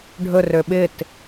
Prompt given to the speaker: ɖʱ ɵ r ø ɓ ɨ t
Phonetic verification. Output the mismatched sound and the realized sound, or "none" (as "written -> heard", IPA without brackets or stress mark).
ɨ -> ɪ